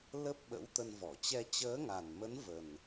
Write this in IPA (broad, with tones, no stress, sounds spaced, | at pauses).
l ə˦˥ p̚ ɓ ə̰˧˥ w t̪ ə˧ n v ɔ˧˩ t͡ɕ ɛ˧ t͡ɕ əː˨˦ ŋ a˨˩ n m ə˨˦ n v ə˨˩ n